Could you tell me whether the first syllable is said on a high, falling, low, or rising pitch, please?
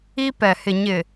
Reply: high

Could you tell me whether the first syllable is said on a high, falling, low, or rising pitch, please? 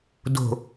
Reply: low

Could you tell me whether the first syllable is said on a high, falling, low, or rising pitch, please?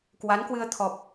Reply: rising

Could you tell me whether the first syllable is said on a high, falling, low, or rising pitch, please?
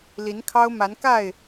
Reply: rising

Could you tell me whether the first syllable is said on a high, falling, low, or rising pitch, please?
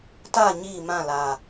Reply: falling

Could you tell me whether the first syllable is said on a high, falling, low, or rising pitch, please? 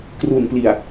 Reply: low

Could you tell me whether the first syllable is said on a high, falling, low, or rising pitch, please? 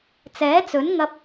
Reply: rising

